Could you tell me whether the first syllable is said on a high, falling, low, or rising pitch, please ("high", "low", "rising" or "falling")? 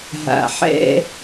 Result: low